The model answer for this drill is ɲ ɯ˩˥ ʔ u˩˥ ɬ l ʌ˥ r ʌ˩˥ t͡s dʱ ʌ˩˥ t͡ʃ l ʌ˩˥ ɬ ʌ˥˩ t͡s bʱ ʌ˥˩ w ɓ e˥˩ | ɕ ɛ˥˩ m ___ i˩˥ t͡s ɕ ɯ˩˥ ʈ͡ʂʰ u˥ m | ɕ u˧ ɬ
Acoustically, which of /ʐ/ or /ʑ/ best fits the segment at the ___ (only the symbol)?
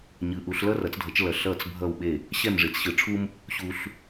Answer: ʐ